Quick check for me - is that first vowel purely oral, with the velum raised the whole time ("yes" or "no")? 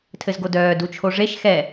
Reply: yes